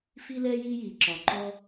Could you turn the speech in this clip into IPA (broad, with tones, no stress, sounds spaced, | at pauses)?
f i˥ l ɛ˥ j i˥ j i˧ ǁ ɒ˧ ǃ ɔ˥